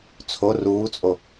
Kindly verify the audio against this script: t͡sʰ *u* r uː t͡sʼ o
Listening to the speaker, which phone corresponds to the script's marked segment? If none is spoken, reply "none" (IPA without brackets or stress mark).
o